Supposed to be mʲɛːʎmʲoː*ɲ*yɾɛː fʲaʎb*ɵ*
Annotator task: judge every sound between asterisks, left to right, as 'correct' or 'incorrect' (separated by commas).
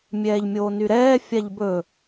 incorrect, correct